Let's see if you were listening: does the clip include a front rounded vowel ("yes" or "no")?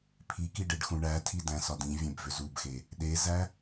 yes